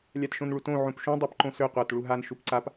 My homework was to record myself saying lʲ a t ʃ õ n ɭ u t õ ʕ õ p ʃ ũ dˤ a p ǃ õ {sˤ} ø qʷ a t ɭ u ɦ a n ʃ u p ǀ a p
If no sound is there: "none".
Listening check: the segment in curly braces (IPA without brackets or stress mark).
s